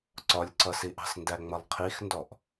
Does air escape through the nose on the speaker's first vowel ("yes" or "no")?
no